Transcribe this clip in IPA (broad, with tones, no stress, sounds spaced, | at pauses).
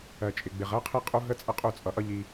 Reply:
ɜ˨ t͡ʃʼ ɪ˨ ɡ͡b ɪ˨ ʁ ɜ˦ qʰ i˦ qʼ u˦ ɦ ə˦ t͡sʼ ə˦ qʼ u˦˨ t͡sʼ ʌ˨ ʔ ʌ˦ ʎ i˦